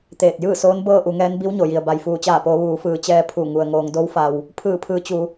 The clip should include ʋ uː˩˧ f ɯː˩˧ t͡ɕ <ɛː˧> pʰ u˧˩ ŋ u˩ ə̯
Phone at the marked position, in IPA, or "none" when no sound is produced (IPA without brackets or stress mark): ɛː˧